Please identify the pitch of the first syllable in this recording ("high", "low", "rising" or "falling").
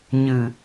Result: low